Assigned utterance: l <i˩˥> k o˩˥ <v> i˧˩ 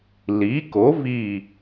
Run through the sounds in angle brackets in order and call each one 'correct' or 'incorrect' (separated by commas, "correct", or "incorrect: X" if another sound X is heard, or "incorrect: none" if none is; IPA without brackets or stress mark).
correct, correct